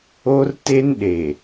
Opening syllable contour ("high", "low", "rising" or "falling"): high